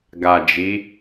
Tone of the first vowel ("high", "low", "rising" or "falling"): low